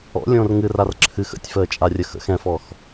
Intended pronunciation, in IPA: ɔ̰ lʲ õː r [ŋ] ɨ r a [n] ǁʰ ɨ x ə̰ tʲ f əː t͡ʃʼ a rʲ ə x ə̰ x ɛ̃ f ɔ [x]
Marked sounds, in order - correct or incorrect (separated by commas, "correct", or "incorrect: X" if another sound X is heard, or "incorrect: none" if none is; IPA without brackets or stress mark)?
correct, incorrect: r, correct